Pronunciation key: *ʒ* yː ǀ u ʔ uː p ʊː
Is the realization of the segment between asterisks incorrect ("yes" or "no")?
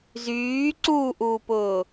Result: yes